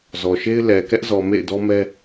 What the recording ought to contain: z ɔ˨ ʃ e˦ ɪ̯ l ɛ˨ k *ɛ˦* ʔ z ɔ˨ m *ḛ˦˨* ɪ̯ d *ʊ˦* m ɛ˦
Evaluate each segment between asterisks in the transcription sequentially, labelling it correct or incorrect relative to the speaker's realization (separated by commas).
correct, correct, incorrect